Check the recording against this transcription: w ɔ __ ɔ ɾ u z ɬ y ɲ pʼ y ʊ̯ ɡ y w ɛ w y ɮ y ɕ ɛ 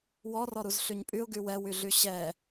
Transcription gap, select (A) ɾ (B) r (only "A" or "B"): B